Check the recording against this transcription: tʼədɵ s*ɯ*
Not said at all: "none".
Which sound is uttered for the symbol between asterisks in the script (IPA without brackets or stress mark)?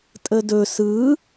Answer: ɯ